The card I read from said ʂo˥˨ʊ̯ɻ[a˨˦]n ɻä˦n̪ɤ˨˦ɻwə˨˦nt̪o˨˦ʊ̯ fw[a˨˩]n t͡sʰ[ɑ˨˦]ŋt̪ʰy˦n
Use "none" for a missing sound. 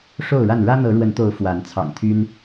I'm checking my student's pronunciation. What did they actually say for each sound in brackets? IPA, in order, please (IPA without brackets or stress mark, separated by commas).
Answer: a˥˨, a˨˦, ɑ̰˨˩